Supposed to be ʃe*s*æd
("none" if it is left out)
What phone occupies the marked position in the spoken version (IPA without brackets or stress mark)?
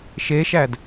ʃ